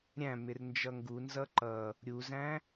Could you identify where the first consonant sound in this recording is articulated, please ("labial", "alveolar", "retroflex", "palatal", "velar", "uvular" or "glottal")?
alveolar